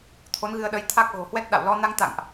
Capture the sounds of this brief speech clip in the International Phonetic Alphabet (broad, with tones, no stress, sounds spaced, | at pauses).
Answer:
t̪ʰ o˨˦ n ɣ ɨ˧ ə̯ ɗ ə˨˦ j t̪ʰ a˦˥ k̚ ɣ o̤˨˩ h w ɛ˦˥ t̚ ɗ a̰˧˨ w l ɔ˧ n a˧ ŋ t̪ a̰˧˨ ŋ ʔ